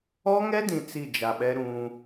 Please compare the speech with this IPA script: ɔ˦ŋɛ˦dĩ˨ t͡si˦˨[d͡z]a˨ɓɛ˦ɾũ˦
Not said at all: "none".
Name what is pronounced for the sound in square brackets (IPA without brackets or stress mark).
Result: d͡ʒ